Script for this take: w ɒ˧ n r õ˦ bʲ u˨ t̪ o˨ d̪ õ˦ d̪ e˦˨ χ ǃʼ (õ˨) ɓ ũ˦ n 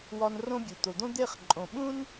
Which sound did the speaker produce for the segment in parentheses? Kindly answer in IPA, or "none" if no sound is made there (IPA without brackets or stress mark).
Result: õ˨